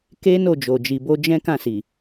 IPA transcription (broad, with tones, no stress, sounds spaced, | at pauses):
k e˦ n o˦˨ d͡ʒ o˨ d͡ʒ i˨ b o˧ d͡ʒ ɛ̃˦ k ã˦˨ s i˨